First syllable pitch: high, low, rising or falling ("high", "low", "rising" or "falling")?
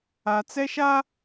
low